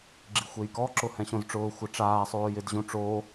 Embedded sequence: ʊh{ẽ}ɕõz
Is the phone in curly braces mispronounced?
yes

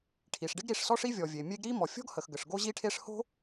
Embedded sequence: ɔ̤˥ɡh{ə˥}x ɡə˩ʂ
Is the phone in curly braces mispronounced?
yes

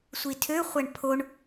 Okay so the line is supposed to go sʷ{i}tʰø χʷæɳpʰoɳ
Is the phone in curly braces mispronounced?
no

